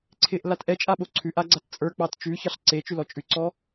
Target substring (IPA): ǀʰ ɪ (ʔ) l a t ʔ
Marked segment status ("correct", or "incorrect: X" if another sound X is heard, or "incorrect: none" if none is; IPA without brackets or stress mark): correct